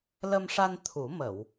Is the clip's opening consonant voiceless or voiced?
voiced